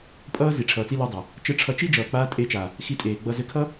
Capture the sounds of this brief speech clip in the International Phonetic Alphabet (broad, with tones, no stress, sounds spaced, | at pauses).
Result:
pʼ ʌː˦ z i˨ ʈ͡ʂʰ ʌː˨ t͡s i˧ l a˧ dˤ ʌ˨ | t͡ʃ ɘ˧ ʈ͡ʂʰ ʌ˧ t͡ʃ i˦ d͡ʒ ʌː˨ k͡p aː˧ tʼ e˨˦ t͡ʃ a˨ | x i˧ tʼ eː˨ ɡ͡b ʌ˧ z ɘ˧ kʰ ʌ˦